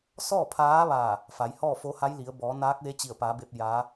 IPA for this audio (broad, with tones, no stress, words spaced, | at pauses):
sɔː˥˨pʰaː˧˥ʋaː˧˩ | fa˩˧j hɔː˥˨ fo˧˥ha˧˥j li˩˧ə̯bɔː˩˧naː˧˥k̚ʋe˧˥ t͡ɕi˧˩ə̯paː˩˧be˧p̚ jaː˧˥